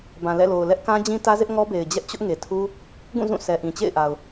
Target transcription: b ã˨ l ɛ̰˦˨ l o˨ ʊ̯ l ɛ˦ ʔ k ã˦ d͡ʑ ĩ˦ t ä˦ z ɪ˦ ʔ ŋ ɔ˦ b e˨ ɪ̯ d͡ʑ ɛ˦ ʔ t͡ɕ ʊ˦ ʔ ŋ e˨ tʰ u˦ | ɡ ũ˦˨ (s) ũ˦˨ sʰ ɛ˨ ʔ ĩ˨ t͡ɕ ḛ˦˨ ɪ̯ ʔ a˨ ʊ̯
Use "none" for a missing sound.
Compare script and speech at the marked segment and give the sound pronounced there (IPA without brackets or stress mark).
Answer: z